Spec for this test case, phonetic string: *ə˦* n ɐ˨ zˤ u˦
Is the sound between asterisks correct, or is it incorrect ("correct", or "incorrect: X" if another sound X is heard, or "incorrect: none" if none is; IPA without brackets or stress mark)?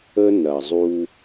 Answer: correct